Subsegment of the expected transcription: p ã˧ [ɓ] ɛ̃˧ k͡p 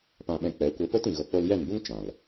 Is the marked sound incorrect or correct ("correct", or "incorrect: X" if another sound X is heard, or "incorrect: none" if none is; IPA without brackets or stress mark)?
correct